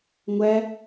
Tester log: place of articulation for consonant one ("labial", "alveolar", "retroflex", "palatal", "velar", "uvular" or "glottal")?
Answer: velar